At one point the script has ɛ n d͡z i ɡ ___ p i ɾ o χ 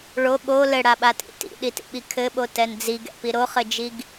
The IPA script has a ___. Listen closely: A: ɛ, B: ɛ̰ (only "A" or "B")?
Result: B